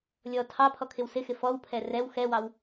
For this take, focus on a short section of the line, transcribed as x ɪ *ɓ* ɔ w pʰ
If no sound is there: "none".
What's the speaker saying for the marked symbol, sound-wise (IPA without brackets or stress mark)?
f